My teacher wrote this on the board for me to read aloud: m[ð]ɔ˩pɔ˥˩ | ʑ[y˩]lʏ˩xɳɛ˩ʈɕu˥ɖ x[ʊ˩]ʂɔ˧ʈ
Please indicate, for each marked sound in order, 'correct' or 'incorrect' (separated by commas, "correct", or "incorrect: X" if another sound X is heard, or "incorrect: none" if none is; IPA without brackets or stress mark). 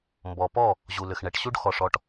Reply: incorrect: b, incorrect: u˩, incorrect: ɔ˩